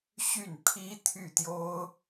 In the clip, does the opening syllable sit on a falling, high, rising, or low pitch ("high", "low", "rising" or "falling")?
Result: falling